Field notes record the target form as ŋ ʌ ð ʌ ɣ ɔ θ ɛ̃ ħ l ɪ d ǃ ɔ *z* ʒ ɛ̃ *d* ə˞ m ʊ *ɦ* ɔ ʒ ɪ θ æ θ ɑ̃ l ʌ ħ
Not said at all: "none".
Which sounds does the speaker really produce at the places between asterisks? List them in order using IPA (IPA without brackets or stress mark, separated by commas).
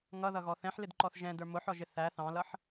θ, d, ħ